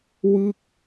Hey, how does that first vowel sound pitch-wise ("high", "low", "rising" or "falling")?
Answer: falling